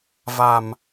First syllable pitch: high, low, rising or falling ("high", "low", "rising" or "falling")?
low